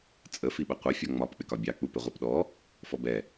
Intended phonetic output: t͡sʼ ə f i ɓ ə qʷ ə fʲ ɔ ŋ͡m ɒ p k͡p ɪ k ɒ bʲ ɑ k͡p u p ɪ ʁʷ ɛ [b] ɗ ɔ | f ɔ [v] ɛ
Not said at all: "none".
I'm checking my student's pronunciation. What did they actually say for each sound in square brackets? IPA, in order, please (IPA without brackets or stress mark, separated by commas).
p, b